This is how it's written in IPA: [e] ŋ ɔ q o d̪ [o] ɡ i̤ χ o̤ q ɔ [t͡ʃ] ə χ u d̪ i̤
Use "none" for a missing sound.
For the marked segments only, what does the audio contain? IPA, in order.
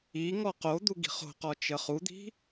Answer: i, u, t͡ʃ

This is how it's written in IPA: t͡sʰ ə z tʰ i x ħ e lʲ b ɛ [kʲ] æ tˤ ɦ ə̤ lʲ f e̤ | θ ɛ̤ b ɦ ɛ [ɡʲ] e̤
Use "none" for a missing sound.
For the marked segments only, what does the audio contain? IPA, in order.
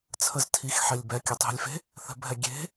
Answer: kʲ, ɡʲ

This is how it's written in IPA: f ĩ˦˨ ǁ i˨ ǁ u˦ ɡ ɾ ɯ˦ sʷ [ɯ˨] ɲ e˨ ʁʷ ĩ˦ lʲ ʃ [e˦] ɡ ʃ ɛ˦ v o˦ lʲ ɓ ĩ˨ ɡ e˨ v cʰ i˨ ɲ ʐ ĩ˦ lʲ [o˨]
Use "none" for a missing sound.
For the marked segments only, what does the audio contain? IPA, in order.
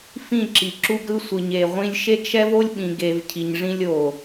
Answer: ɯ˨, e˦, o˨

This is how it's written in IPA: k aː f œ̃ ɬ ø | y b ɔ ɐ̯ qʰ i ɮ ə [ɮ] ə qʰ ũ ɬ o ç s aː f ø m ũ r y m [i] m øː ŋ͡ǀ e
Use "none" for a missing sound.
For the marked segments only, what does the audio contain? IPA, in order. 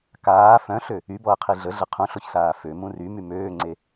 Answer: ɮ, y

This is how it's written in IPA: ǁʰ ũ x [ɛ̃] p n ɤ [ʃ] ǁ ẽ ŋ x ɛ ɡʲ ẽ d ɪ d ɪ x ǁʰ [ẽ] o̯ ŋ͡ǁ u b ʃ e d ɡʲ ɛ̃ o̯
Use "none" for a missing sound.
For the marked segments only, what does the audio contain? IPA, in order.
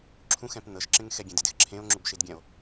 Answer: ɛ̃, ʃ, ẽ

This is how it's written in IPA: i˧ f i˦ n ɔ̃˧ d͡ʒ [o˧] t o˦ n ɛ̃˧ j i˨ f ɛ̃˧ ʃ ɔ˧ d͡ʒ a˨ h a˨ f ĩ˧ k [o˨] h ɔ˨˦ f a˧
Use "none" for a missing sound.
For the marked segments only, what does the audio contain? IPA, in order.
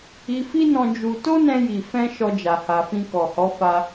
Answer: u˧, ɔ˨

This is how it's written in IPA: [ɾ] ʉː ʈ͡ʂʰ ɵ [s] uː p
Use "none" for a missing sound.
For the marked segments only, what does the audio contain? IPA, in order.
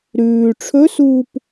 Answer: ɾ, s

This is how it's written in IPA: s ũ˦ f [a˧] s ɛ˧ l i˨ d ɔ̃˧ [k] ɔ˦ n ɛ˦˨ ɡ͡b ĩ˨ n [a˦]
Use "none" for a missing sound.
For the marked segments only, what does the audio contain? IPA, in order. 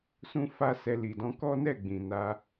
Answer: a˦, k, a˧

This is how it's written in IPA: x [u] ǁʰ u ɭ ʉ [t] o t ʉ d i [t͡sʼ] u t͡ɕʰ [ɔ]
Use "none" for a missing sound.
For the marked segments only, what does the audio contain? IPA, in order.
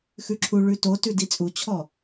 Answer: ʉ, t, t͡sʼ, ɔ

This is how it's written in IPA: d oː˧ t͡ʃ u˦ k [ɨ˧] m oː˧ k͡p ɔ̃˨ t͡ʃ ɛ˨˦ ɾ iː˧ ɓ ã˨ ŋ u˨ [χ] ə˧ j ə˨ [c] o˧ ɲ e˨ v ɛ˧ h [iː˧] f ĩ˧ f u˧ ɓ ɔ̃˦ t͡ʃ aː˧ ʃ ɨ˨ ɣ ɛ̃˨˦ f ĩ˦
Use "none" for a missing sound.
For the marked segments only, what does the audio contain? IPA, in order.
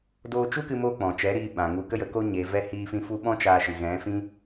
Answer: ɨ˧, k, k, iː˧

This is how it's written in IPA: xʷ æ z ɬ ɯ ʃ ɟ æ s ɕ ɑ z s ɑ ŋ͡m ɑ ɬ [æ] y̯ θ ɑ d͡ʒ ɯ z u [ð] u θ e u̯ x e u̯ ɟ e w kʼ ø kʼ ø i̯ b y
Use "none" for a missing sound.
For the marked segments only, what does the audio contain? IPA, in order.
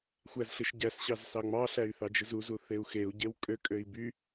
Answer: æ, z

